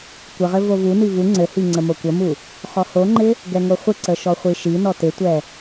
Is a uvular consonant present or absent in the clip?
present